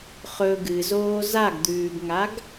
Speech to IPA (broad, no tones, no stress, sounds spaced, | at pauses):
χ ɵ ɡ ɨ z oː z a ɡ d̪ ʉː ɡ ŋ a ɡ